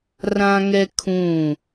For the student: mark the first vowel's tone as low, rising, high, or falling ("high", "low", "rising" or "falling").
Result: high